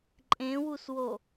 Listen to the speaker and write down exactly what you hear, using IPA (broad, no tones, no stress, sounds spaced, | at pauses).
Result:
ǃʼ ẽ w u s w o